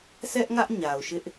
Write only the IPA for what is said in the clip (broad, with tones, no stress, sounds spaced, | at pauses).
s ɛ˦ ʔ ŋ ä˦ ʔ ɲ a˨ ʊ̯ ʃ ɪ˦ ʔ